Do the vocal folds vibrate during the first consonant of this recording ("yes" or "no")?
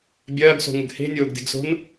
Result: yes